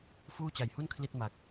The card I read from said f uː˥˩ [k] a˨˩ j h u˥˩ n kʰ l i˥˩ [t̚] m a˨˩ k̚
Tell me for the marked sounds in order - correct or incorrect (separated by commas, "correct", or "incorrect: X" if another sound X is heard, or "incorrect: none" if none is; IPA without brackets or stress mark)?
incorrect: t͡ɕ, correct